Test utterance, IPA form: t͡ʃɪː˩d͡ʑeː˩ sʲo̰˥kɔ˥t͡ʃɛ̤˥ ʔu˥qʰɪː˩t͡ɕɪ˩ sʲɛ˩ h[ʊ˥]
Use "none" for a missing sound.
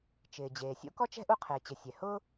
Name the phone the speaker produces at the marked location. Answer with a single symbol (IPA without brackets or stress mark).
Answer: ʊ˥